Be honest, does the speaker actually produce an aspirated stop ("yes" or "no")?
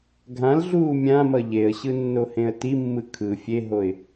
yes